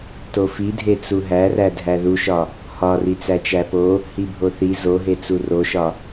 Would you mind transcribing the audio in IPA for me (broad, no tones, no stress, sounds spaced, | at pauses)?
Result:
t o f i dʱ e t͡s u ɦ æ r æ dʱ æ ð u ʃ ɒ | h ɒ r i t͡s æ t͡ʃ æ p o | h i bʱ o θ i z o ɦ e t͡s u r o ʃ ɒ